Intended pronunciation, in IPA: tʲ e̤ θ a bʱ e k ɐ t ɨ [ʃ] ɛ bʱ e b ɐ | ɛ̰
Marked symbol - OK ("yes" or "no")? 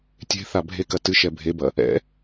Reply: yes